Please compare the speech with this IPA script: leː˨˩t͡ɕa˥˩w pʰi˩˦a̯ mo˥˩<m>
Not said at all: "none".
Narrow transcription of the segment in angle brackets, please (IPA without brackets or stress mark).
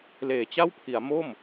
m